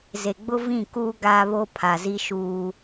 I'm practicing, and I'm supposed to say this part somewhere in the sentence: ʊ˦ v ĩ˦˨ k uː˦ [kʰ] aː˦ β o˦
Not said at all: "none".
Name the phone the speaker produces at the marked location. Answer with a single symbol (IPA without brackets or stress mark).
ɡ